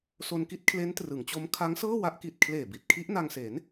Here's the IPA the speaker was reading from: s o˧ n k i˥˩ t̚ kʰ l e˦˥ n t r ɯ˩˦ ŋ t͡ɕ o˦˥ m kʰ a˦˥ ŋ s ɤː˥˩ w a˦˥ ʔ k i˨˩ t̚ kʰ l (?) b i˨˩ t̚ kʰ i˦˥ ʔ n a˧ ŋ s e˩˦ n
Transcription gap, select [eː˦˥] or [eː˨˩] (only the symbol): eː˨˩